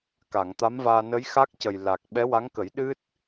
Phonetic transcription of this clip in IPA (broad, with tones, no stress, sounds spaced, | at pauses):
k a˨˩˨ ŋ t̪ a˧˥ m v aː˧ n ə˧˥ j x a˦˥ k̚ c ə˨˩ j l a˨˩ k̚ ɓ ɛ˧˥ w a˧˥ ŋ k ə˨˩˦ j ɗ ɨ˦˥ t̚